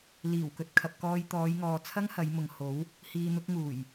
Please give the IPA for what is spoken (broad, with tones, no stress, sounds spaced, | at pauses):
l iː˨˩ w k ɵ˨ t̚ kʰ ɐ˨ p̚ k ɔː˧ j t̪ ɔː˨˧ j ŋ ɔː˨ t͡sʰ ɐ˥ ŋ h ɐ˨˧ j m ʊ˨ ŋ h o˨˥ w | h iː˨ n̪ ʊ˧ k̚ ŋ uː˨˩ j